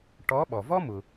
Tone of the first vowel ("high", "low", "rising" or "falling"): rising